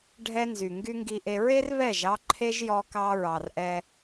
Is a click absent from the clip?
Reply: no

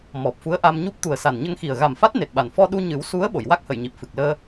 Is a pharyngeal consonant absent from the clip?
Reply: yes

